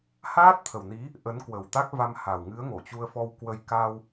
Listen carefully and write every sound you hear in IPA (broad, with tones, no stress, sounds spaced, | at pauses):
h aː˦˥ t̚ t̪ʰ ə˨˩ w n i˨˦ | ʔ ə˨˦ n k w ə˨˩ w t̪ a˦˥ k̚ v a˧ m h a˨˩ w ŋ ɨ˨˦ ə̯ ŋ o˧˩ t͡ɕ u˧ ə̯ f ɔ˧ w k w ə˧ j k a˧ w